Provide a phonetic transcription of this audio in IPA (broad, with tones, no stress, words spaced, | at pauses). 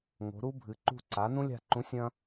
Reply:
ŋo̤˩˧ɾu˦bʱɨ˩˧ ǃṳ˦ǀa˩˥ nũ˦lʲa̤˩˧ǃũ˩˥sʲ ɐ̃˦